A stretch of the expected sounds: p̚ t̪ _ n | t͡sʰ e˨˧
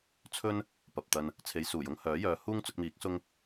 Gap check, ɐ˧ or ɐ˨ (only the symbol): ɐ˧